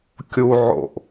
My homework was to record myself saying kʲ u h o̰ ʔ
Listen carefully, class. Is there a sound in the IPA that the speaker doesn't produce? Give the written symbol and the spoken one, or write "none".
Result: h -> ʕ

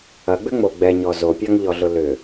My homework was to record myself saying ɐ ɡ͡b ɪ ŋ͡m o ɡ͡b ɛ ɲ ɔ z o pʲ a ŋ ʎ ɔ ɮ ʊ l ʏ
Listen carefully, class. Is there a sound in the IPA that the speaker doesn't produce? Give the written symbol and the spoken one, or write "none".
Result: ɪ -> ʏ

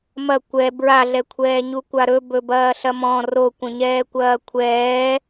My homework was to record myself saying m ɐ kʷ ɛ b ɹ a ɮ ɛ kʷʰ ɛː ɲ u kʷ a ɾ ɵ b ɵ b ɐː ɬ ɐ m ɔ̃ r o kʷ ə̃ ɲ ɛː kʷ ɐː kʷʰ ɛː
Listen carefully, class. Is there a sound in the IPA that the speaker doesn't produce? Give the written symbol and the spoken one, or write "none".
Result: none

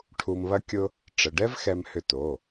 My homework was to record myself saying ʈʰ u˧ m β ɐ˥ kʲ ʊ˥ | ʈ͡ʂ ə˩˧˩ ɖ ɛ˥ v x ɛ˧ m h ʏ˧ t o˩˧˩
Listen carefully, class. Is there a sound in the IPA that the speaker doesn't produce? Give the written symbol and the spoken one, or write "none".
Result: none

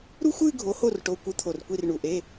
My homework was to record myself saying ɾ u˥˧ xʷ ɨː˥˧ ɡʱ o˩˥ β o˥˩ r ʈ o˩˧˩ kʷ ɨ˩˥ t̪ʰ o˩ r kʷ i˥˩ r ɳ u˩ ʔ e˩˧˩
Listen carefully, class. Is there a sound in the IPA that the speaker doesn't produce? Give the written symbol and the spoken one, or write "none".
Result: β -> h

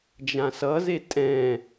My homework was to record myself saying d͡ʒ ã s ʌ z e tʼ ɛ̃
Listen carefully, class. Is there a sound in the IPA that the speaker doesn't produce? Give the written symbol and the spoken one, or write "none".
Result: none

